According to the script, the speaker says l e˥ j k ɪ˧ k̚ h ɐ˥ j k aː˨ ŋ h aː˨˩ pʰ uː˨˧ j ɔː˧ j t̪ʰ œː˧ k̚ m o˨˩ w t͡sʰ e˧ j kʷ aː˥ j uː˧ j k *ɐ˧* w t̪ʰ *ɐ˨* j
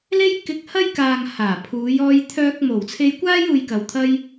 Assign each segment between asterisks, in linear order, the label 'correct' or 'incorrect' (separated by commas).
incorrect, incorrect